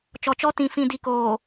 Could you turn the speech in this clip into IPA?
t͡ʃɔ˨t͡ʃɔ˦ tĩ˨fĩ˨di˨ koː˨

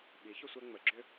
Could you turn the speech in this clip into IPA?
ɓi˨˥ çʏ˥sʷɛ˥ŋ͡mə˨˥ ɡ͡ǁʏ˥

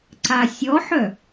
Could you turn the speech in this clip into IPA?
ǀasʲɔħœ

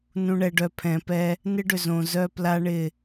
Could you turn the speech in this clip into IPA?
nũ˨ɳɛ˨ɖœ˨ pʰɛ̃˨pɛ˦ | nɪ˦ɖʏ˨ zõ˨ zœ˦pla˦ɳɪ˦˨

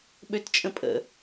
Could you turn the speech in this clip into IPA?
ɓøtt͡ʃʼə̃pʼə̰

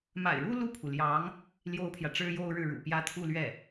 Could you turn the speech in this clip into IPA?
ma̰˨˩ɪ̯ɻu˥ lu˥˩pʰu˩ljɑ˧˥ŋ | ljo˥ʊ̯pʰjä˨ ʈ͡ʂɻ̩˥jo˥ʊ̯ ɻɻ̩˥˩ɻṵ˨˩pjä˥ t̪ʰu˥˧ lɥɛ˥˩

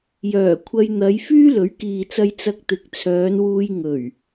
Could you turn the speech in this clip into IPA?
jœː˨˩kʷʰɐ˧jn̪ɐ˨˧j fyː˥lɵ˨˥ɥkiː˨t͡sɐ˧j t͡sɐ˧k̚t̪ɪ˨˥k̚t͡sʰœː˨˧nwuː˧j ŋɵ˨˩ɥ

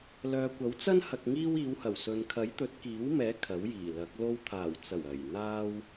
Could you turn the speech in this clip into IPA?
lœː˨kʷɐ˨˥wt͡sɐ˥n hɐ˧k̚ŋiː˥w iː˨˧whɐ˨˩wsɵ˨n kʰɐ˨˥jt̪ɵ˨˥t̚kiː˨˥wmɛː˨˥ kʰɐ˨˥wjiː˨˩lɐ˨˥k̚ lo˧wt̪ʰaː˨˩wt͡sɐ˨˩w ɐ˨˩j n̪aː˥w

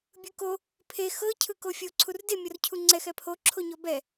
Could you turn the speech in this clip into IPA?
bʲɯko | pʰe xɤ cʰɯkofʲo ǀʰurde mʲɔrcʰuŋ͡ǀɛx ɛpʰo ǁʰoɲɔbɛ

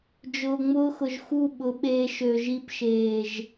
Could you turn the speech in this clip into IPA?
d͡ʒʊː˨ŋ͡mʊː˧xʊ˨ʒ xu˦˨ɓʊ˨˦ɓeː˧ ʃø˨ʒi˧pʃeː˨ʒ

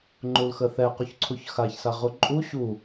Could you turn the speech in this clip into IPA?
ŋ͡ǃulxəθɛ quçǀʰuçxaç saʁuǃʼu ɕu

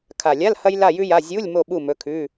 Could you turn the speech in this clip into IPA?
kʰa˨˩lʲa˧˥˧l hɐ˥jla˥˨jʉ˥ja˧˥˧ zʲu˧˥˧lʲ mo˥˨ɓu˥˨ mɵ˧˥˧kʰʉ˧˥˧

